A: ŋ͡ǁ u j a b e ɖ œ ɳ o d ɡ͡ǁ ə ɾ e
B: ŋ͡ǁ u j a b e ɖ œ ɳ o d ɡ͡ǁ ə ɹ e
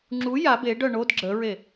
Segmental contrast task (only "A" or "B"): B